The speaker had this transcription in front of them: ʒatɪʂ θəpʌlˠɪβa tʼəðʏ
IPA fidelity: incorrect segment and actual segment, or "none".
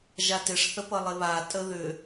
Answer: none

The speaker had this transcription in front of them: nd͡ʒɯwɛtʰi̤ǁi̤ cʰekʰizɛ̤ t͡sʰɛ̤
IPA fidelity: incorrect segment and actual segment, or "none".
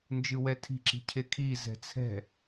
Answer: none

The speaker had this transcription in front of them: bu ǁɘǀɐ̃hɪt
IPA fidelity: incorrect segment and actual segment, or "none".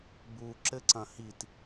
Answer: ɪ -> i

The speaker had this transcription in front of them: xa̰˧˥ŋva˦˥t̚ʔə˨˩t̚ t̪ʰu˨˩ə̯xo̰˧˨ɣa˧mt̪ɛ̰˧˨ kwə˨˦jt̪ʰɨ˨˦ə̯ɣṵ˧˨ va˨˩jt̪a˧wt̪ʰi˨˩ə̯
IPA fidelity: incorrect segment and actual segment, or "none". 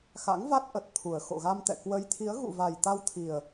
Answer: ɨ˨˦ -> i˨˦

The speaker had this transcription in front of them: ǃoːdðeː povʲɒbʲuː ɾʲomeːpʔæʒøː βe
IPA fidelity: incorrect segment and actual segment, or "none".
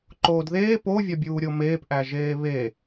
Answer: øː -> eː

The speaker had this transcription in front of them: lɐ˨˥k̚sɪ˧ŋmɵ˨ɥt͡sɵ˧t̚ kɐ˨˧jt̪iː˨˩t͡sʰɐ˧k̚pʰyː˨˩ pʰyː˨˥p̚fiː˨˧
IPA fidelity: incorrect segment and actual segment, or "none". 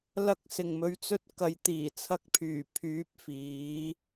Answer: ɪ˧ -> ɪ˨˩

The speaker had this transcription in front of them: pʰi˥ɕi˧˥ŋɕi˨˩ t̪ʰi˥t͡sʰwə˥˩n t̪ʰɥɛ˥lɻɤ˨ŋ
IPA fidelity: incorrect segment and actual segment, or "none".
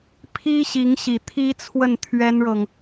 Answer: l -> n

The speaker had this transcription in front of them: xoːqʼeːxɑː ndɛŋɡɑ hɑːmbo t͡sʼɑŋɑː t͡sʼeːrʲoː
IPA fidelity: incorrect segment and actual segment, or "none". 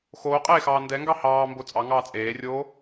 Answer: none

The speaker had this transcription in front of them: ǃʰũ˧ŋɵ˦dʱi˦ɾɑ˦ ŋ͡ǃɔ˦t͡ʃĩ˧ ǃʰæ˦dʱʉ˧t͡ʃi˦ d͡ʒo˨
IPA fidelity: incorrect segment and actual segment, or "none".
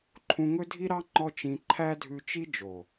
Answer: none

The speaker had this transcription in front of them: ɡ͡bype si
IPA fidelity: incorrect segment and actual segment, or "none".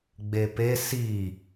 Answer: y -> e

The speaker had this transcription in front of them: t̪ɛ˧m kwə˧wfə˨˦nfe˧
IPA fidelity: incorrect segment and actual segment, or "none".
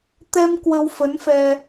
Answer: e˧ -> ɛ˧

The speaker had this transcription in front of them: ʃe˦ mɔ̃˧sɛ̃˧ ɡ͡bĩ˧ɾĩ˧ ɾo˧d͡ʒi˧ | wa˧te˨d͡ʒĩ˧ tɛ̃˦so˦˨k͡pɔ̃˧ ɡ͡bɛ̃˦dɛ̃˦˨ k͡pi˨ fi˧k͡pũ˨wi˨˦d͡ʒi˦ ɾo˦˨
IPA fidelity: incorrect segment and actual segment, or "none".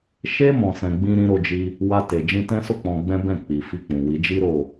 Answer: d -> b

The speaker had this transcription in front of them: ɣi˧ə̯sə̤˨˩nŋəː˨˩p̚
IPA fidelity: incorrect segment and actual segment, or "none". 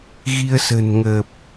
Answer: none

